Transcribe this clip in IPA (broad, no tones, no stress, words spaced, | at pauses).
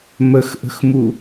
məxʔə̤xmu